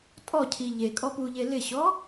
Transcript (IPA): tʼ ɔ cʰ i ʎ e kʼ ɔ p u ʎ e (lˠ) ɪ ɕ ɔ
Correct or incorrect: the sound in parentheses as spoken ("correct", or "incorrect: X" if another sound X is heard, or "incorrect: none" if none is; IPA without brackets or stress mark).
incorrect: l